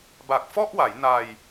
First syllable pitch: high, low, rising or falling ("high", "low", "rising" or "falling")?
low